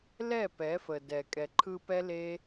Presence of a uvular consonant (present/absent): absent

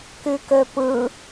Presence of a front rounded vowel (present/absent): present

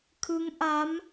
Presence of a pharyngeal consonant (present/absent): absent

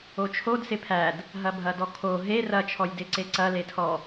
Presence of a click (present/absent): present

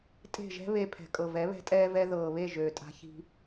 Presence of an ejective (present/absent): present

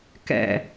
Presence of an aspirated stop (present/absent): absent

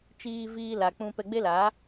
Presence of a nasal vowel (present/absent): present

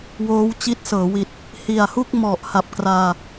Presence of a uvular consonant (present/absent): absent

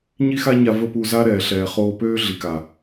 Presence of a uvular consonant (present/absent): present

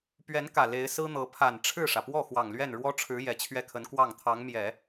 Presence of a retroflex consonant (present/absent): present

